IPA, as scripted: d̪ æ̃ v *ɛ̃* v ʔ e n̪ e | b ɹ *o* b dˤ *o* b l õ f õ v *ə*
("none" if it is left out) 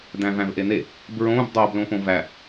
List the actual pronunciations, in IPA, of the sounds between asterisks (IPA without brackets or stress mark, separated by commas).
æ̃, õ, o, æ